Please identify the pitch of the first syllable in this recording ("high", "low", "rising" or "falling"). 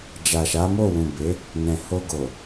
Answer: low